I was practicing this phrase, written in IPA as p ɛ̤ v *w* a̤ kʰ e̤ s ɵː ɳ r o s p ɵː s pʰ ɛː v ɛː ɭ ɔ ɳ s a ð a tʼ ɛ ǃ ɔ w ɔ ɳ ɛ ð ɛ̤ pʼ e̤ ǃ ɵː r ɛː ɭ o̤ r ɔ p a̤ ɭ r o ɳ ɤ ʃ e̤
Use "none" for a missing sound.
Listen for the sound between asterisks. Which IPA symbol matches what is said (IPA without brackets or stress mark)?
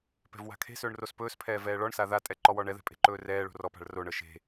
w